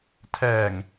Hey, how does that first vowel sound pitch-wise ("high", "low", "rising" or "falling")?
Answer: low